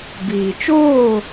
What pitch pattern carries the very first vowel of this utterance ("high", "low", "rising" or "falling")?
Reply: low